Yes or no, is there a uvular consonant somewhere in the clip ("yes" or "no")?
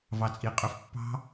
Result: yes